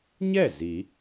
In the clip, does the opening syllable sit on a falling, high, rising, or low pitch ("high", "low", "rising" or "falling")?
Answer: falling